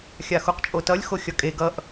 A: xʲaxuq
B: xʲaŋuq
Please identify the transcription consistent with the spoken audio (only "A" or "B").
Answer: A